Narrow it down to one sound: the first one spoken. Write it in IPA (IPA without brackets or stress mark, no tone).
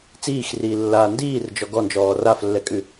t͡s